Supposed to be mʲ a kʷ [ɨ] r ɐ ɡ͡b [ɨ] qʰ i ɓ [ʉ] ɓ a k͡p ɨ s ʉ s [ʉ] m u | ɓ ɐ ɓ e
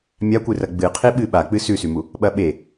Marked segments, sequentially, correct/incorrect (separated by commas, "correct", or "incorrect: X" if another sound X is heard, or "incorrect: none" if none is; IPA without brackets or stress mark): correct, correct, incorrect: ɨ, correct